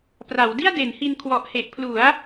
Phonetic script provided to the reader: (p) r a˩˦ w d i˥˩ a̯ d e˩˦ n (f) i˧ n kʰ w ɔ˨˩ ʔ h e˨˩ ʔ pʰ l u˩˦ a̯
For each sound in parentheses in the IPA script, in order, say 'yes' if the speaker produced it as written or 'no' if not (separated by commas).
yes, no